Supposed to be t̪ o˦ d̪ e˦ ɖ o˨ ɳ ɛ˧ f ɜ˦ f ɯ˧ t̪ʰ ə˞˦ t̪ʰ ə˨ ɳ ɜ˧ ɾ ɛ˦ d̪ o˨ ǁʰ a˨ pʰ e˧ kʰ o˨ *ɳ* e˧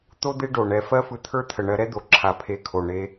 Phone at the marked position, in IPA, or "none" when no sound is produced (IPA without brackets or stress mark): ɳ